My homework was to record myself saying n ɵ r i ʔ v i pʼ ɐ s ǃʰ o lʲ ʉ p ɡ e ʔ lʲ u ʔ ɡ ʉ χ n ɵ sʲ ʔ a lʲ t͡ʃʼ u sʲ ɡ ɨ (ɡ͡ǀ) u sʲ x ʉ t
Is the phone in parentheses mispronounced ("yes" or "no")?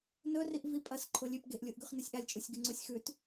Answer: yes